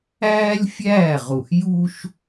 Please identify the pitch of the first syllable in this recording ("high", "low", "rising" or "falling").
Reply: high